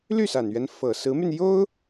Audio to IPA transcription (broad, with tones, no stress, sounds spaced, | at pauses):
l y˥˩ s a˨˩ n ɥ ɛ˦ n f ɤ˨˩ s ɹ̩˧˥ m y˧ n j o˥ ʊ̯